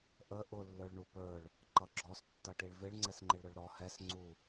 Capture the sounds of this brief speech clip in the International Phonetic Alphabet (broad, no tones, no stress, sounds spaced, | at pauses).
ʔ ə ʔ ʊ lː ə˞ ɭ ɳ u p ə˞ ɭ | ǃ ʌ ɡ͡ǁ ɔ s tː ʌ ʈ i ɭ v ɪ ɭ ŋ͡ǀ ɛ s ŋ͡ǃ ɪ ɭ ɾ ʊ ɭ ɾ ɔ h ɛ s ŋ͡ǀ u